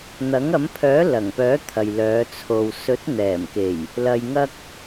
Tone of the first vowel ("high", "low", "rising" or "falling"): rising